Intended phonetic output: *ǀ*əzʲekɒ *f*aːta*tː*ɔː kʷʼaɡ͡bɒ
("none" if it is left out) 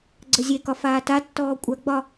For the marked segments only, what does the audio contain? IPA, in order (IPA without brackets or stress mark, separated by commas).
ɡ͡ǀ, f, tː